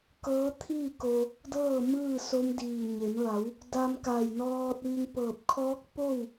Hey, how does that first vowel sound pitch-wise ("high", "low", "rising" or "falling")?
rising